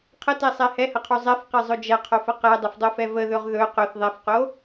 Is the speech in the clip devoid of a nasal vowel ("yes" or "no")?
yes